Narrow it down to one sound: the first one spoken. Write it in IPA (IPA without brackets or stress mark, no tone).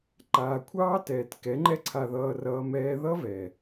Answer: ǃ